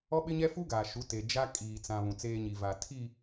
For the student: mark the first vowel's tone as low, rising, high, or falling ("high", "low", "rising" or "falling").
high